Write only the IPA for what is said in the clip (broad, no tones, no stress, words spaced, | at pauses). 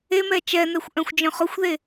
emɛ t͡ʃɛnɛxʷ ʔœ̃xʷd͡ʒœ̃χʊxʷðe